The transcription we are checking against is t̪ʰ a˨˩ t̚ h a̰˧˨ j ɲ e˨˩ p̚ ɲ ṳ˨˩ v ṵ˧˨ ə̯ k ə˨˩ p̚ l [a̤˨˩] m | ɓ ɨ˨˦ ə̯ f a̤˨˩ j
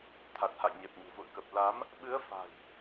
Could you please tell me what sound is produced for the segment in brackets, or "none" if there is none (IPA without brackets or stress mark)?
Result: a˨˦